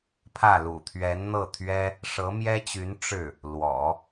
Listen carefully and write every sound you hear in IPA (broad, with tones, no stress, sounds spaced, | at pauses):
pʰ ä˥˩ l ṵ˨˩ t̪ʰ ɥ ɛ˧˥ n n̪ ɤ˥˩ t̪ʰ ɥ ɛ˥ | ʂ ɤ˧˥ m j ɛ˥ t͡ɕ y˧˥ n ʈ͡ʂ ɻ̩˥˩ | l w ɔ̰˨˩˦